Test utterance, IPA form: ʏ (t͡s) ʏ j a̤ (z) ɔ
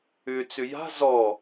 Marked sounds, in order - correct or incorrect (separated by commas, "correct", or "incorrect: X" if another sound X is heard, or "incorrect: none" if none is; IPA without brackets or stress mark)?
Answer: correct, correct